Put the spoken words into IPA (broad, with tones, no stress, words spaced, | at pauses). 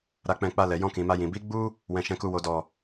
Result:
ɾa˧k͡pɛ̃˧ k͡pa˧lɛ˨ jɔ̃˧kĩ˨ma˧jĩ˨ bi˨˦ ɡ͡bu˦ | wɛ̃˧ʃɛ̃˧ku˧ wo˨ dɔ˨